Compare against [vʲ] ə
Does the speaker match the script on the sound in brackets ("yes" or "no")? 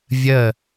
yes